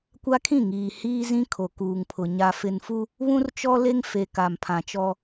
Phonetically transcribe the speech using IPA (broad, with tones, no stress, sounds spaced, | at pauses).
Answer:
kʷ a˦ kʰ ĩ˦˨ ŋ iː˨ h iː˦ z ĩ˦ kʰ o˨ k uː˨ ŋ pʰ ʊ˨ ɲ a˨ f ɪ˨ n f u˦ | β ũ˦ r t͡ʃ ɔ˦ l e˦ ŋ f e˨ k a˨ m pʰ ã˨ t͡ʃ ɔ˦